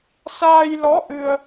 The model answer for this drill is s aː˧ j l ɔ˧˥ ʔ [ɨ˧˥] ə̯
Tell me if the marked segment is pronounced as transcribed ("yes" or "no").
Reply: no